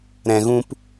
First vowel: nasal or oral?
nasal